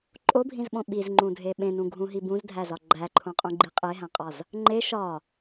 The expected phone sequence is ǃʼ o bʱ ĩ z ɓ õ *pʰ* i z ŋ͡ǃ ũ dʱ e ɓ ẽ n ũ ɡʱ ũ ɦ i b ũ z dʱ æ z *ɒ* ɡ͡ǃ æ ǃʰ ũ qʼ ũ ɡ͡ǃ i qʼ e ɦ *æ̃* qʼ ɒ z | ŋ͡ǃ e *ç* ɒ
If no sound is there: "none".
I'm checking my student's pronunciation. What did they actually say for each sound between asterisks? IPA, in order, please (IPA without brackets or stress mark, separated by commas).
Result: ɓ, ɒ, æ̃, ʃ